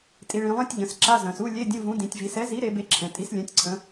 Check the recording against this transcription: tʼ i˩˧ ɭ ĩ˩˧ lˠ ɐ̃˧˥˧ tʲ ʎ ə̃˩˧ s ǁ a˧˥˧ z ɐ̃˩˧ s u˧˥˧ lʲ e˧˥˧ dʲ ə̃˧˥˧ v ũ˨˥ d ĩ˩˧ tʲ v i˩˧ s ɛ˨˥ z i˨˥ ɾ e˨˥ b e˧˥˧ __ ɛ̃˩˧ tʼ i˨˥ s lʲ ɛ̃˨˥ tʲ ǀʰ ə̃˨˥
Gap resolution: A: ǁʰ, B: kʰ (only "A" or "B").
A